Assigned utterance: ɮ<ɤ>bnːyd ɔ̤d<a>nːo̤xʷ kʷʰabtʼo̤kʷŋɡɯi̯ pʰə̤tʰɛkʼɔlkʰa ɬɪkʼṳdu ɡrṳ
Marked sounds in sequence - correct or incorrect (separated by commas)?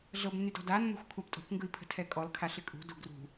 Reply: correct, correct